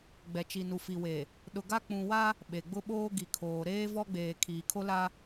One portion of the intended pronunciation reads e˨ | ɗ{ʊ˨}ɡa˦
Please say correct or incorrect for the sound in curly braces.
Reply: correct